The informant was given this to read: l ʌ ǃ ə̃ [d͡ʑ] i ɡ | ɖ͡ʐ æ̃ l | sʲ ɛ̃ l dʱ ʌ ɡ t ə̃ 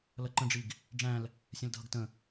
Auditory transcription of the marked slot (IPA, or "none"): ɖ͡ʐ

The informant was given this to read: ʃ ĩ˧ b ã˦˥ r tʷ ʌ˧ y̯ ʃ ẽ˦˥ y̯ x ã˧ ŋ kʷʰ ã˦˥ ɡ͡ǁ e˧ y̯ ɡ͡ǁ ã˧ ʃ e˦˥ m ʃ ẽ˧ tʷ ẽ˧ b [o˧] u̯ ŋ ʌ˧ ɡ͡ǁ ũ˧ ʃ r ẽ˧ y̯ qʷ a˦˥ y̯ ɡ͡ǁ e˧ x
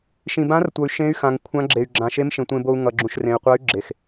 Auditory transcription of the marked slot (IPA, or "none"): o˧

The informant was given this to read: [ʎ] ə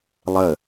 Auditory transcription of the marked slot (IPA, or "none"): lˠ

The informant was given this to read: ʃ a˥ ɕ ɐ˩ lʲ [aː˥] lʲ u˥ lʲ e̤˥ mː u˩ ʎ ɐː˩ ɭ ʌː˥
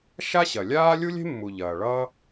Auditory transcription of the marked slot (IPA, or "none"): aː˥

